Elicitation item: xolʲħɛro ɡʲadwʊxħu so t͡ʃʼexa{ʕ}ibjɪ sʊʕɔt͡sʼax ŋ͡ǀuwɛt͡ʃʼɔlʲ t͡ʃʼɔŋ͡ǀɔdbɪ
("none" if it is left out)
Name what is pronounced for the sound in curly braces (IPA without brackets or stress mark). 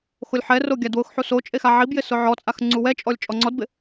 ʕ